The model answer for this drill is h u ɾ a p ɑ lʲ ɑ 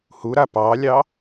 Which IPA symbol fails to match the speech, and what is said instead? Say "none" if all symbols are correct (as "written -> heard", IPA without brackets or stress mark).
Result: none